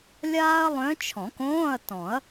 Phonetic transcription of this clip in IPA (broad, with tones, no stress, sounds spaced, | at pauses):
lʲ aː˥ ɐ̯ lˠ œ̃˧˥ t͡ʃʰ ɔ̃˨˩˦ k õː˧˥˧ ɐ̯ t ɔ̃˨˩˦ ɐ̯